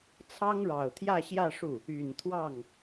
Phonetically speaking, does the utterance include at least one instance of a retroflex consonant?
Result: yes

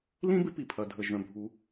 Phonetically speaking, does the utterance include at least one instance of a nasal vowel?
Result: yes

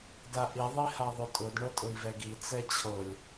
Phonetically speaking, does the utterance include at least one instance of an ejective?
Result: yes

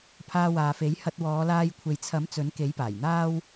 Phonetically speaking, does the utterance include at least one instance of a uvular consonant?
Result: no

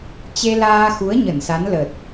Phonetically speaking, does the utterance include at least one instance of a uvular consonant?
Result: no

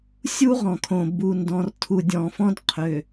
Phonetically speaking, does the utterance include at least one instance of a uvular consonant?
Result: yes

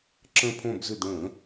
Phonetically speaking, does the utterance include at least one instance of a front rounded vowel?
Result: yes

